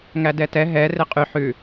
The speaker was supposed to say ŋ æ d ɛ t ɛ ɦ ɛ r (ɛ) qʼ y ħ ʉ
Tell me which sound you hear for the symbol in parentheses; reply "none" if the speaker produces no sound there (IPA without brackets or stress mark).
e